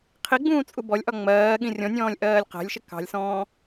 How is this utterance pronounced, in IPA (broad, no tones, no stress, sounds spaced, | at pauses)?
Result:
qʰ i ɡ͡b ũː t͡sʼ u b ɔ lʲ ʔ ɒ ŋ͡m ɜː ɠ ĩ rʲ ɔ̃ nʲ ɔ̃ː lʲ ʔ ɜː lʲ q æ̤ lʲ ʃ ɪ k ɑ̤ lʲ s ɔ̃ː